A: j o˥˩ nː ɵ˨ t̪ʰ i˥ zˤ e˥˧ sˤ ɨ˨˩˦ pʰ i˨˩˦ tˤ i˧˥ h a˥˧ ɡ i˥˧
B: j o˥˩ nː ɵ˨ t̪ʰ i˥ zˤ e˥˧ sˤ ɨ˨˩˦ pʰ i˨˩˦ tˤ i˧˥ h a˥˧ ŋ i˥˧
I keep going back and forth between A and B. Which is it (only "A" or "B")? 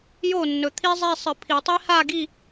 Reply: A